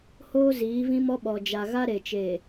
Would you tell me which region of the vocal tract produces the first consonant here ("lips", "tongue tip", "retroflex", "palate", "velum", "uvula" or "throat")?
throat